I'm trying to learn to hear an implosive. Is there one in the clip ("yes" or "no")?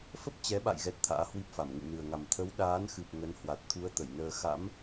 yes